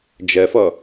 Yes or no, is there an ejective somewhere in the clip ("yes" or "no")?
no